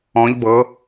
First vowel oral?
no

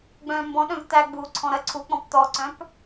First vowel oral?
no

